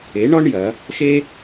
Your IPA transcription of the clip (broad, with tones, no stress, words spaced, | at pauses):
e˨˦ɳɔ˦ɳ jɐ˨˦ | xe˦